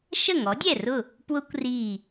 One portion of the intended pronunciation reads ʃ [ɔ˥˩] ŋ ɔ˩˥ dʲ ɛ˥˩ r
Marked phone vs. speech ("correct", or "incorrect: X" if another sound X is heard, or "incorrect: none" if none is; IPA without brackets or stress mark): incorrect: ə˥˩